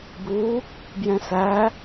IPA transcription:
bu | bjɛ̃sæ

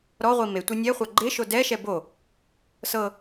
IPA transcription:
ɾɔʁʷi metʷe nʲɛχʷa ɡ͡ǃeʃo dɛʃɛ bo | sɤ

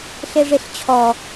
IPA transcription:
ɬeʐeɬt͡ɕʰɔ

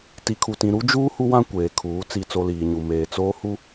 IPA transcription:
ti˨kʰu˨tĩ˨ ɾu˦d͡ʒuː˦ hu˦wã˦ kʷeː˨kʰuː˨˦ t͡si˦˨t͡so˦ liː˨ɲu˨ meː˨t͡soː˦hu˦

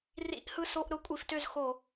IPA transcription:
rḭ˧˩˧ʔhɯ˦˨ so˧˥˧ʔ ɾʊ˧˥˧kʷʼi˧˩˧ftø˦˨z xo˧˩˧

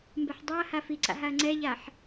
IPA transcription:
mbɛħdˤaɐ̯ha fiǀa̰ ɦaɐ̯ŋ͡ǀɛʎaħ

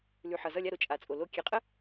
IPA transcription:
lʉ˩ ħʌ˩zʌ˧˩lʲa˧˩ɾo˩ t͡ʃʼa˩t͡sʼo˩ lo˧˩ kʲe˩˧˩qʼə˦

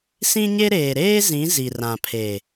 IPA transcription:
sĩ˦ɲe˦ ɾeː˨ɾeː˦ zĩ˨˦ zi˨rã˨pʰe˨

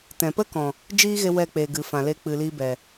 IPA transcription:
tɛ̃˧ pə˦kɔ̃˨ | d͡ʒiː˦ ɣe˦wɛ˦˨ k͡pe˨ ɡɨ˨fã˨le˧ k͡pɨ˨liː˧bɛ˨

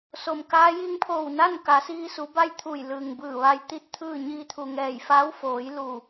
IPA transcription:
so˩mkaː˧˥ ji˧ŋpʰoː˧˩wna˥˨nka˩˧ siː˧su˩˧ba˥˨j t̪ʰu˧˩jlɯː˩ŋbɯː˧˩ ʋa˧j t̪i˥˨t̚t̪ʰɯː˥˨ ɲiː˧t̪ʰu˩ŋɛː˧˩j faː˧˥wfoː˩˧j lu˧˩

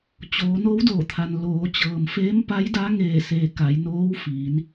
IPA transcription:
t͡ɕoː˩˧no˧˥wdoː˧˩t̪ʰa˩n loː˩˧t͡ɕɤː˩mfeː˧˥m pa˧˥jda˧˥ ŋeː˧˩seː˩ ka˩˧jnoː˧˥wfiː˩˧n

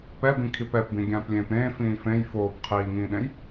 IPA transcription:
pɛbĩkʰip ɛpbĩ ɡʲãːplʲẽːpɾẽː fĩːfẽj foːp qʰiːŋĩːɗẽj

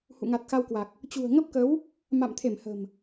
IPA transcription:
hṵ˧˨ŋa˨˩t̚xa˧wkwa˨˩k̚ | t͡ɕṳ˨˩ə̯ ŋə˦˥p̚kə˨˦w | ma̰˧˨mt̪ʰe˧˩m hə̤˨˩m

